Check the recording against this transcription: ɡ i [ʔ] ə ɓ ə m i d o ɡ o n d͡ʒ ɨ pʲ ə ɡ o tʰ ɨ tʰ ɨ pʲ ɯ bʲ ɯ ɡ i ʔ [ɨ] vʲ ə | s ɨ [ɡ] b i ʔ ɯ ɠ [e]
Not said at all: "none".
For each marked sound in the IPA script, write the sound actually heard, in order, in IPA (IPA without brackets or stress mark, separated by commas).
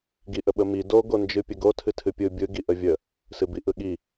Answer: ʔ, ə, none, i